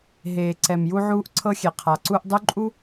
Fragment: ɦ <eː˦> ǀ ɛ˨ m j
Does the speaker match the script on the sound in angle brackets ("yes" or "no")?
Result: no